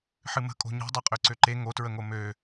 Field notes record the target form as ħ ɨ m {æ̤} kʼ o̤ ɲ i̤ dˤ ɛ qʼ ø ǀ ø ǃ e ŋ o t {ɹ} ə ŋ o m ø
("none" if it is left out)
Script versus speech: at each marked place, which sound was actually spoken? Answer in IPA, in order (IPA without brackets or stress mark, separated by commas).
ə̤, ɹ